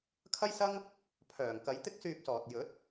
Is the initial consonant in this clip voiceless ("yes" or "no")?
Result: yes